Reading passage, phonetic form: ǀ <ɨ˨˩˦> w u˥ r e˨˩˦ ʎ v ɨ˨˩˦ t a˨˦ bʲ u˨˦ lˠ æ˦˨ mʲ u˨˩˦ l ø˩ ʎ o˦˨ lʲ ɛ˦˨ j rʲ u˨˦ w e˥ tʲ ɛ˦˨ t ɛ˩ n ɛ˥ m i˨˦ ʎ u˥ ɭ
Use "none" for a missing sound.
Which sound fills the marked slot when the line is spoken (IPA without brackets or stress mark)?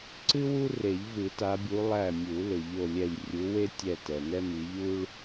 ɨ˥